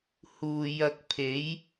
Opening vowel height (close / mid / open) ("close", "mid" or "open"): close